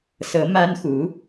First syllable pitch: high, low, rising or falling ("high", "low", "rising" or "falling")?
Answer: rising